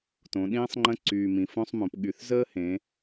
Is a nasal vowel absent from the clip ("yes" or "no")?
no